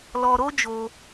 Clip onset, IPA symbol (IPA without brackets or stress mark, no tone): l